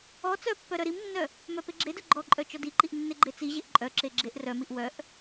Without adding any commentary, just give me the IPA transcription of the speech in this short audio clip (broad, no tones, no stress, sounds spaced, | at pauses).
ɔ t͡s œ pː œ ɾ œ ɾ i m nː œ | m œ p e ɡ͡ǁ e d œ ɡ͡ǃ ɔ ǃʼ œ t͡ʃ ɔ d i ǃ i ʔ nː e ɡ͡ǃ e t͡s i ʑ e ʔ ǃʼ œ ǁ e ɡ͡ǁ e ʔ r œ m i ʔ w œ ʔ